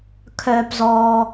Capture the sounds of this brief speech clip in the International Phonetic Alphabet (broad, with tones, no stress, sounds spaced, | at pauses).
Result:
kʰ œː˩ p z ɔː˩